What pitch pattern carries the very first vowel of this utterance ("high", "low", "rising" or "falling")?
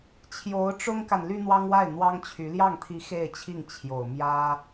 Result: rising